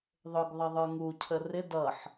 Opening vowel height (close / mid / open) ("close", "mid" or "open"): close